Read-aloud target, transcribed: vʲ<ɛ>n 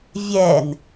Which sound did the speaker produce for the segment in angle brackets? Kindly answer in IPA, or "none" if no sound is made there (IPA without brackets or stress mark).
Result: ɛ